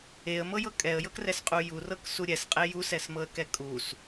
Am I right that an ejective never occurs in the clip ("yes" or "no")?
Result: no